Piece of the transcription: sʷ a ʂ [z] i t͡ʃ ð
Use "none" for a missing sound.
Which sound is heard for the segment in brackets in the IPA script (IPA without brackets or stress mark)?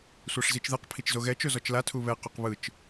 z